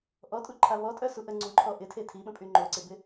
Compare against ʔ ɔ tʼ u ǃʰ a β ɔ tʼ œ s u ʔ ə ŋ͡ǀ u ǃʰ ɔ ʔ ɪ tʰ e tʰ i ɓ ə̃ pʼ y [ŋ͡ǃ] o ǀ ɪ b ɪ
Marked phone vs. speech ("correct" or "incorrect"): correct